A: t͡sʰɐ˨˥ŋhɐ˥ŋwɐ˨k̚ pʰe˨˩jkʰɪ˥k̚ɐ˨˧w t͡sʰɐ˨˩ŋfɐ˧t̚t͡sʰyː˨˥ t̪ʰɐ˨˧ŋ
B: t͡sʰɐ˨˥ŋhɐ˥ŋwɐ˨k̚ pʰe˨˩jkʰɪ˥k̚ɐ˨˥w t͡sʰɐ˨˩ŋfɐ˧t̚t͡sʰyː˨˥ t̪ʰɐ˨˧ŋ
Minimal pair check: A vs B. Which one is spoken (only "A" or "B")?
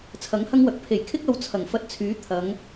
A